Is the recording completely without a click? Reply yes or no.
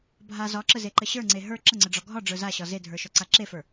no